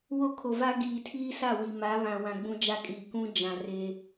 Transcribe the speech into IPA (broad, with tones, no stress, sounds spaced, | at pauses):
w o˦ kʰ o˨ v a˦ ɡ iː˨ tʰ iː˦ s a˦˨ w i˨ m a˨˦ β ã˨ w ã˨ ɡ͡b ũ˦ d͡ʒ a˦ kʼ iː˨ k ũ˦ d͡ʒ ã˨ r e˦